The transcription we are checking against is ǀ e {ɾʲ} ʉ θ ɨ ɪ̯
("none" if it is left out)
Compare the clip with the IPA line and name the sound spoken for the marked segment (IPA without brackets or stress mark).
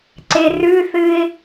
r